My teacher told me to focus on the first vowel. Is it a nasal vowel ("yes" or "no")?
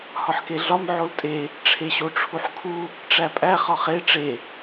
no